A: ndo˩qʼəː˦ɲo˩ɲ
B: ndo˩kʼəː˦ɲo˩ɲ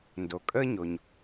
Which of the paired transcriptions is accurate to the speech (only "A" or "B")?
B